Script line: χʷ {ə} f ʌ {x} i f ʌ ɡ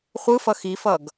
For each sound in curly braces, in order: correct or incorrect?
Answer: incorrect, correct

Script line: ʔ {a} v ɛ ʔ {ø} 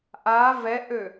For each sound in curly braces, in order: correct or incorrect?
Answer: correct, correct

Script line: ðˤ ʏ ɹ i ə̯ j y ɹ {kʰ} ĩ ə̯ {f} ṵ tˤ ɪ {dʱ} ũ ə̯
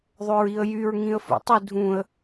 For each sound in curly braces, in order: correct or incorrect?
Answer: incorrect, correct, correct

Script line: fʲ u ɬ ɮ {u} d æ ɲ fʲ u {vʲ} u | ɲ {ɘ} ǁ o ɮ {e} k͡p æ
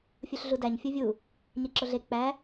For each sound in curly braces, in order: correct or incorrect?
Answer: correct, correct, incorrect, correct

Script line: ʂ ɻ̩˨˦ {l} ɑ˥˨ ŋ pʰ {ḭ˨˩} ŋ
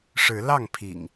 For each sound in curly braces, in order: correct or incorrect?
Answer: correct, correct

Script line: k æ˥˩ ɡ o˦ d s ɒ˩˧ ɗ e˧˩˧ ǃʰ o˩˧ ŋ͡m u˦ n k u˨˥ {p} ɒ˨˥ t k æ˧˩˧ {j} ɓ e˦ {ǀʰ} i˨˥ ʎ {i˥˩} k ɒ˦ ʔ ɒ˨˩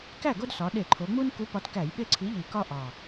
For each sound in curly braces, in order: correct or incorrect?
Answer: correct, correct, correct, incorrect

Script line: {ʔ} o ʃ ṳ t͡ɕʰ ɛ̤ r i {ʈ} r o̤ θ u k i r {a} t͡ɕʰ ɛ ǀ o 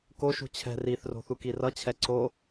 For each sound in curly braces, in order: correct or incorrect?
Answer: incorrect, incorrect, incorrect

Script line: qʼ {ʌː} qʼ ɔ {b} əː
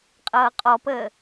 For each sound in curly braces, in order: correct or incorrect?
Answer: correct, incorrect

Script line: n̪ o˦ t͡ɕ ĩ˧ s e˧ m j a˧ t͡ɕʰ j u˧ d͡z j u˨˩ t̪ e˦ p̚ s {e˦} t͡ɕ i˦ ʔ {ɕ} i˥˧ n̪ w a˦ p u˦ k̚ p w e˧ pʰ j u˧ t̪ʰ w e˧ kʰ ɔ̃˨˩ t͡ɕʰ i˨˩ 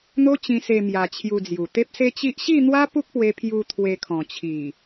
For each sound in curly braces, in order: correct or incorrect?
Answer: correct, correct

